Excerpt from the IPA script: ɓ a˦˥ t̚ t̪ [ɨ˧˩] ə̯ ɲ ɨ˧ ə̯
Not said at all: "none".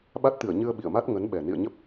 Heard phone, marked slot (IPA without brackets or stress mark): ɨ˧˩